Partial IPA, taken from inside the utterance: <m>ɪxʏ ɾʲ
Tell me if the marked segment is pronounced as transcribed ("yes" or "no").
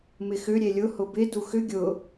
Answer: yes